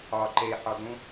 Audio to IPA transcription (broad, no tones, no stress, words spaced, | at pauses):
ɒ ǃe ħɒdũ